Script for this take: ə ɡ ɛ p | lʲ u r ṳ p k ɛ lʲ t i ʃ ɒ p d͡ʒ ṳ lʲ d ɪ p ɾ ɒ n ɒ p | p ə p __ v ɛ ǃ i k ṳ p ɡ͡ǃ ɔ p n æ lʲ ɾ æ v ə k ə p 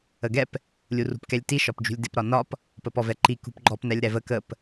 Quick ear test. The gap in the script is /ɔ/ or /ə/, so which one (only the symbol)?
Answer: ɔ